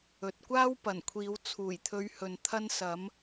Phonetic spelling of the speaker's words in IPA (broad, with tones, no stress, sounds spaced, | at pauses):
ɵ˨ t̚ kʷ aː˥ w p ɐ˨˩ n kʷʰ iː˨˧ w t͡sʰ uː˨˩ j t̪ʰ ɵ˨˧ ɥ h ɵ˨ n t̪ʰ ɐ˧ n s ɐ˨˧ m